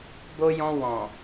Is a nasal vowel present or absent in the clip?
present